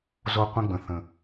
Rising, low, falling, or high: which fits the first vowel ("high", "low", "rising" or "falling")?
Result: high